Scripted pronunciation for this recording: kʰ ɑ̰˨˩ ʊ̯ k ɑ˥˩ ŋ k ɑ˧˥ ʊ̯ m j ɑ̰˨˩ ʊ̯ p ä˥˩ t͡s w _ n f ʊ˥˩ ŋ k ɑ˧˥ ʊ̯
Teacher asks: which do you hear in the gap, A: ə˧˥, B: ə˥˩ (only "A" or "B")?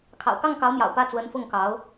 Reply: A